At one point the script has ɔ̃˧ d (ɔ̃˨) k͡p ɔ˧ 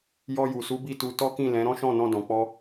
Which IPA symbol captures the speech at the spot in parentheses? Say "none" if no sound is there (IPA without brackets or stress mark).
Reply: ɔ̃˨